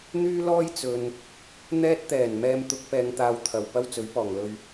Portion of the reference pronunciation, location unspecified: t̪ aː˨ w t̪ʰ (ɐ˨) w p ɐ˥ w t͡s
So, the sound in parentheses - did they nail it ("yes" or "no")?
no